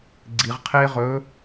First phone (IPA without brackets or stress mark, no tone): ɡ͡ǀ